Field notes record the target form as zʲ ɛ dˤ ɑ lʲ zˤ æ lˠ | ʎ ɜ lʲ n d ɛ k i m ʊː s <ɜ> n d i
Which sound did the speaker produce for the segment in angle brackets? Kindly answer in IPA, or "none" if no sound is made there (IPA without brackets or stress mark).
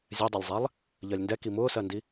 ɜ